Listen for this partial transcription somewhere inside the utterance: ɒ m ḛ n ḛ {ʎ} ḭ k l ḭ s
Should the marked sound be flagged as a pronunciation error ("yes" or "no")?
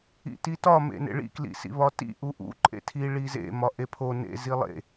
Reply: yes